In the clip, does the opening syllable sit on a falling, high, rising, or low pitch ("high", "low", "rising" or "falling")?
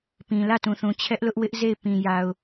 low